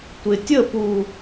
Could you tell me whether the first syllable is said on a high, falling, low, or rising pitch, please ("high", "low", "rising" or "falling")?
low